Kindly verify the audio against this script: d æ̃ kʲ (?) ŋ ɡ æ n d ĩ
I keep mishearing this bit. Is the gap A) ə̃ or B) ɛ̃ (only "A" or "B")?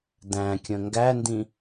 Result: A